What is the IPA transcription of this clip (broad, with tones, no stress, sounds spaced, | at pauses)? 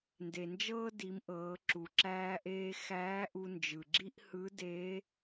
n d e˩ n d͡ʒ ɤː˥ d i˩˧ m ʔ ɤː˩˧ ǁ u˩ ǁ æː˧ ʔ eː˧ x æː˧˥ ʔ u˧ n d͡ʒ ɯ˩ ɡ͡ǁ i˥ ʔ h ɯ˧˥ d eː˧˥